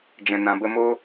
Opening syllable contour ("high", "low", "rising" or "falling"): low